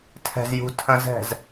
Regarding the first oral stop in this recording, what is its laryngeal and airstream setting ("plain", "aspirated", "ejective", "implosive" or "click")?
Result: aspirated